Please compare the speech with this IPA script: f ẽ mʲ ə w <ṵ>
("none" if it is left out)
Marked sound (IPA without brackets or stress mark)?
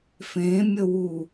u